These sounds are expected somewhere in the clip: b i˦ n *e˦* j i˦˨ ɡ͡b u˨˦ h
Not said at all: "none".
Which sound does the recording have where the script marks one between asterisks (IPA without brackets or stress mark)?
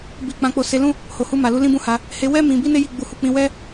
e˦